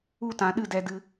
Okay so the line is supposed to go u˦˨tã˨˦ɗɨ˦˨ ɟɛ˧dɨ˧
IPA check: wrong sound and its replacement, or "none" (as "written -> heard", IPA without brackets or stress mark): ɟ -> d